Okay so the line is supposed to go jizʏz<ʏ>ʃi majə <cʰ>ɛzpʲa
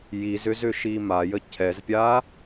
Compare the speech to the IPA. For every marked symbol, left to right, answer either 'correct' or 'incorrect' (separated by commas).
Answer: correct, correct